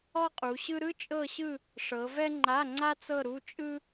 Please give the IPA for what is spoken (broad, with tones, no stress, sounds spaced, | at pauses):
ɔ˥ qʼ u˨˦ ɕ ɯ˥ ɾ ɯ˥ t͡ʃʼ ɤ˥˧ ɕ ɯ˥˧ | ʂ ɤ˨˦ v ɛ˥ ŋ͡ǃ a˧˥˧ ŋ͡ǀ a˥ t͡s ɤ˥˧ ɾ u˧˥˧ t͡ʃʼ ɯ˥